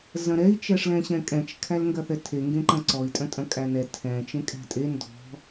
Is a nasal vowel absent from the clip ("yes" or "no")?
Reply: no